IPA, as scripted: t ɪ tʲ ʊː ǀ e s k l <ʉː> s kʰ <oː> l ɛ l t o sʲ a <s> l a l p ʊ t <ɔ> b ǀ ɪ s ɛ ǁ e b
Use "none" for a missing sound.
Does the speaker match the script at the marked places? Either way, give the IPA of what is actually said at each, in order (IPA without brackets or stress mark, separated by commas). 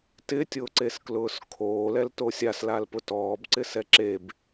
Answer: ʊː, oː, s, ɔː